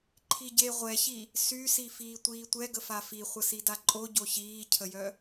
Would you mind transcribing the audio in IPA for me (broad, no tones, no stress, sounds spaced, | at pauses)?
ǃʰ i ɟ e ʁʷ ɛ ç i | s y s i f iː tʷ iː tʷ ɛ ɡ ə f a f i χʷ ə s i d a ǃʼ o ɟ o ç iː cʰ ə j œ